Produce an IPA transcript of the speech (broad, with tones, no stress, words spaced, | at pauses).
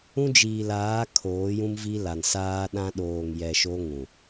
ũ˦d͡ʒiː˨laː˨˦ kʰoː˨˦jũ˦mvi˦ la˨nsaː˦ɗã˦ ɗoː˨ŋjɛ˨ ʃo˦ŋũ˨